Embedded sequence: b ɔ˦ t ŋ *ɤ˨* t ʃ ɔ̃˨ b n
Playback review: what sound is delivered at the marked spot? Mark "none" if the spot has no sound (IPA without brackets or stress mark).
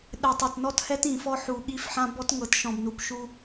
ɤ˨